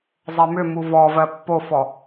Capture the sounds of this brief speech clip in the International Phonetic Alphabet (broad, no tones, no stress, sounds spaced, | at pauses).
zˤ ɜ m ʏ m u v ɔ v ɜ pː o f ɔ